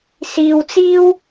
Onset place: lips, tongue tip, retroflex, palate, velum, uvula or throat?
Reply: tongue tip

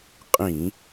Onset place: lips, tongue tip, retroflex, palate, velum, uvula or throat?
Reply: uvula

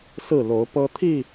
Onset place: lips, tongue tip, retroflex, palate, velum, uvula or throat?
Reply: tongue tip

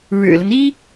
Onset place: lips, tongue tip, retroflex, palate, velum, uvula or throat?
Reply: retroflex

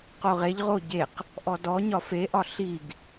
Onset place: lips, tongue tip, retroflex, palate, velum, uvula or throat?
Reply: uvula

